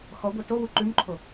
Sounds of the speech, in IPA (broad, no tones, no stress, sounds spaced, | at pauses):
x ɔ ɡʷ ɛ t o w u ǃ ʉ m ǃʰ o